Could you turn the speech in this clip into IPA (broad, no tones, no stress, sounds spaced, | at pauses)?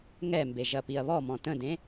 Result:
ŋ ɛ m b e ʒ ɐ p i ɐ̯ β ɔ m ɔ̃ t ə̃ d ẽ